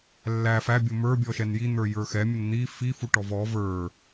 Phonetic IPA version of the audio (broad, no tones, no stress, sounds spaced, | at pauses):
lː æ f æ bʲ ʊ m ə˞ bʲ ɔ ʃ ɛ n j i n̪ ə˞ j ə˞ x ɛ mʲ ʊ n n̪ i f i f u ʈ ɔ v ɔ v ə˞